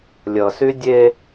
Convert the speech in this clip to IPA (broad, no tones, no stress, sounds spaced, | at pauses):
lʲ ʌ s y dʲ e